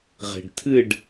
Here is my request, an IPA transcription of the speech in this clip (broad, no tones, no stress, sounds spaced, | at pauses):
ʁ e̤ ɖ tʰ ɨ ɖ